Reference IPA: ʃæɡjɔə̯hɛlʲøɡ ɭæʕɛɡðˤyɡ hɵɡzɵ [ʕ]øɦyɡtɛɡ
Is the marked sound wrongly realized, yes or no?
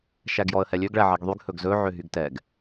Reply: no